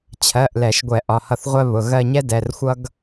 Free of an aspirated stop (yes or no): no